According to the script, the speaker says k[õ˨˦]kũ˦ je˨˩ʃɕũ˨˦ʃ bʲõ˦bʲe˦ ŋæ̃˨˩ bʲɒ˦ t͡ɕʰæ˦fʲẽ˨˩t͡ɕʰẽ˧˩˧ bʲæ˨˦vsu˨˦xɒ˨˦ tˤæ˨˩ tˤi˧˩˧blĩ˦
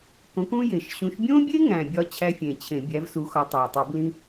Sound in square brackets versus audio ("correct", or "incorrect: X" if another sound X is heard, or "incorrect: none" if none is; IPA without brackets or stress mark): correct